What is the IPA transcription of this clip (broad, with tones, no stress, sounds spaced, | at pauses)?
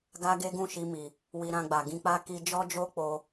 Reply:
ɡ a˦ ɡ e˦ ɡ ũ˦˨ ʃ i˧ m i˨ | w i˧ ɾ ã˧ ɡ͡b a˨ ɡ ĩ˧ k͡p a˦ k i˧ d͡ʒ ɔ˦ d͡ʒ o˦ k͡p o˧